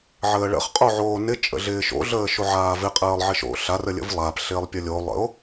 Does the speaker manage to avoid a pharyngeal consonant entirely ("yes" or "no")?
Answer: no